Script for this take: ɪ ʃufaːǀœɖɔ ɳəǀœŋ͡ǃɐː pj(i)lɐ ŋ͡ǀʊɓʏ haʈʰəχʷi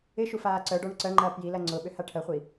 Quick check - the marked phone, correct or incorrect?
correct